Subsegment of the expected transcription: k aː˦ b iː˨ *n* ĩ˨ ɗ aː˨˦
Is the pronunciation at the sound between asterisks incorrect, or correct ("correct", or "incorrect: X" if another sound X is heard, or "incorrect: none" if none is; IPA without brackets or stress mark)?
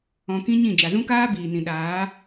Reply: correct